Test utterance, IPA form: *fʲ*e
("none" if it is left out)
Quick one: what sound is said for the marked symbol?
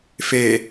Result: f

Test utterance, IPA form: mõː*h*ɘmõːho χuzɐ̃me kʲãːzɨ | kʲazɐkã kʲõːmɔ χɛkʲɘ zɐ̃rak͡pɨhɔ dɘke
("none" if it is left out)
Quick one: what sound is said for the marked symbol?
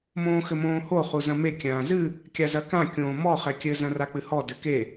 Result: x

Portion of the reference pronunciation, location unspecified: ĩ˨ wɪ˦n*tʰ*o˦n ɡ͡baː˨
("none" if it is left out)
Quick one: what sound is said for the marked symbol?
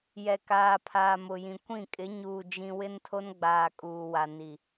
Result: tʰ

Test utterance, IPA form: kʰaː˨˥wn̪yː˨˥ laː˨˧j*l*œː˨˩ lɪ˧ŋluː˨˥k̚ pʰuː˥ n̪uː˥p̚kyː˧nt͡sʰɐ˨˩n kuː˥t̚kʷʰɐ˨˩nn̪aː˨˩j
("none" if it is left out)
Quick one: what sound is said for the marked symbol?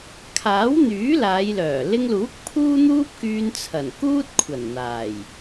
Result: l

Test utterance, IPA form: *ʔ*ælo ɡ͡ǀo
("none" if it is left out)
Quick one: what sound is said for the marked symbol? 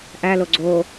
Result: ʔ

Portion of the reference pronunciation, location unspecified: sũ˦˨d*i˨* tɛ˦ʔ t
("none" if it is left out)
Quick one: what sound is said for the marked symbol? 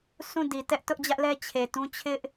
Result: i˨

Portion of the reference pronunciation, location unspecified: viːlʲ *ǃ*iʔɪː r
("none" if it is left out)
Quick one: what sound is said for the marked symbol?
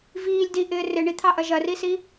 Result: d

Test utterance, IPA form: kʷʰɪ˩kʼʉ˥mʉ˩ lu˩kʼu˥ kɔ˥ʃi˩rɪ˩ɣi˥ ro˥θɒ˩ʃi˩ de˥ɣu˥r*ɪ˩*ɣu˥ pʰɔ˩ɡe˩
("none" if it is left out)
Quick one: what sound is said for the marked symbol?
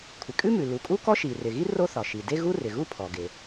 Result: ɪ˩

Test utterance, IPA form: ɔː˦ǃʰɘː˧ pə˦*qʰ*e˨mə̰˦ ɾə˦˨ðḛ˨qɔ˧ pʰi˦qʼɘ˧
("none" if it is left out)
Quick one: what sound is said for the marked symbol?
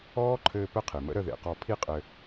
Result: qʰ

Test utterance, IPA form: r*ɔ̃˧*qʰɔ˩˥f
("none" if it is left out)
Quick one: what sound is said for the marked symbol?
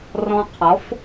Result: ɔ̃˧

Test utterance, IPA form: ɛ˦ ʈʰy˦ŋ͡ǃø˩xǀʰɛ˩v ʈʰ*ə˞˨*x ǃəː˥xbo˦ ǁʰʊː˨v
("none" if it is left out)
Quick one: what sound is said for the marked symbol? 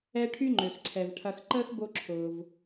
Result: ɐ˨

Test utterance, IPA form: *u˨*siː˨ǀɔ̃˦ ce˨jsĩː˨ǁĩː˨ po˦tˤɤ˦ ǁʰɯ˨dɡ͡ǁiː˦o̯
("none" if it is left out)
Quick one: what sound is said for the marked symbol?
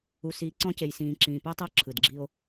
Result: u˨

